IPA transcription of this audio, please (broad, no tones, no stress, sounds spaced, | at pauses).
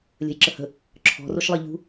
lʲ ə̤ j ǁ ə h ə̤ | ǁʰ ɔ̤ r o ʃ lˠ ə ʎ ṳ